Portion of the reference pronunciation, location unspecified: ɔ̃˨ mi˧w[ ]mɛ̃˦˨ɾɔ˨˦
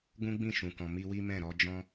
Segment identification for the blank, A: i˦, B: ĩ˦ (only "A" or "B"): A